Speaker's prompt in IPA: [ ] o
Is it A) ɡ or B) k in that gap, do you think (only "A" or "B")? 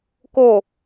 B